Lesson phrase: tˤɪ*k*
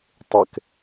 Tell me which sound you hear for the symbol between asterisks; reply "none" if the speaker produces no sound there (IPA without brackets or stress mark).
k